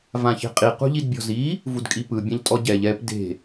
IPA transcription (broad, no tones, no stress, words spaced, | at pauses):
vãçe̤qʼi qṳʎidbʲɔ̤zi | vudkʼipɯ bʲãʎtʼɔɟɛʎ ɛp de̤